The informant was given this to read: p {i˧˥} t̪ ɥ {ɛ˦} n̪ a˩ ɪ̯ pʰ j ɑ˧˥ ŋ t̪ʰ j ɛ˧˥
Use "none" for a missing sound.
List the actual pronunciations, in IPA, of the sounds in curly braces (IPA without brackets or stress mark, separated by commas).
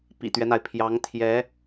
ḭ˨˩, ɛ˦